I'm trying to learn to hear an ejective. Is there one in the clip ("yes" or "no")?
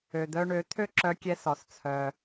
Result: no